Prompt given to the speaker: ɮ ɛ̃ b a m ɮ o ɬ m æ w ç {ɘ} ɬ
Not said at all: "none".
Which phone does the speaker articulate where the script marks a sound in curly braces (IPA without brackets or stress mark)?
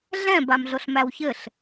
ɘ